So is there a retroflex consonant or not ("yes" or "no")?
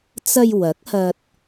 no